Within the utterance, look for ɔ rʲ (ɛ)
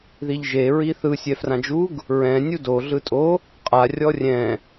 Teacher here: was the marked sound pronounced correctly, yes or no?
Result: no